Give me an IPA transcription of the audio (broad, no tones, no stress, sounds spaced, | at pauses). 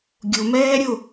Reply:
ɡʲ ʊ m ɛː ɾʲ ʊ